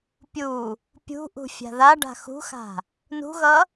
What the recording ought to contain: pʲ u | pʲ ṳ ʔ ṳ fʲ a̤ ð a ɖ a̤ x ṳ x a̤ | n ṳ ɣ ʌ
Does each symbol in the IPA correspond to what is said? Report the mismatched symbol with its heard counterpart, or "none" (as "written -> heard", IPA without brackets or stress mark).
none